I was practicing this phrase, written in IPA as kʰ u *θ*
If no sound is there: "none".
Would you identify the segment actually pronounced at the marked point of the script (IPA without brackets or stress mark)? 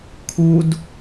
d